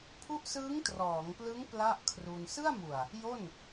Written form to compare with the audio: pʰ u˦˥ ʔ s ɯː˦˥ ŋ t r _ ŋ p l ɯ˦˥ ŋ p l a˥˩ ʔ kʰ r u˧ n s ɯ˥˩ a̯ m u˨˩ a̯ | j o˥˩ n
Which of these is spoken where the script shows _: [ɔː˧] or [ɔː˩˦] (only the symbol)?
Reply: ɔː˩˦